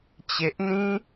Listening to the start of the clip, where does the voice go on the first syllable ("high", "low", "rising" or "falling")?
low